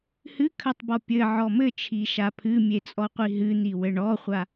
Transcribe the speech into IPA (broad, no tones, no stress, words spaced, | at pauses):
hɨkʰɐtˤbɔ pʲɘʕɔ mɘt͡ʃʰiʃa pʰɨmʲet͡sʼɔqʷi ɦɨn̪iwɘ ɳɔχʷa